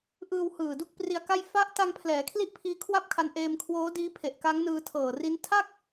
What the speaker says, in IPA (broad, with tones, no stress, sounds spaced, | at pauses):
ʔ ɯː˧ w h ɯː˨˩ d u˥˩ k̚ p r i˧ a̯ k a˥˩ j f a˦˥ ʔ t a˧ ŋ pʰ l ɛː˩˦ kʰ l i˥˩ ʔ pʰ iː˦˥ kʰ w a˥˩ p̚ kʰ a˧ n ʔ eː˧ m kʰ w oː˦˥ d iː˦˥ pʰ e˨˩ ʔ k a˦˥ ŋ n ɯː˧ tʰ ɤː˨˩ r i˦˥ n tʰ a˥˩ k̚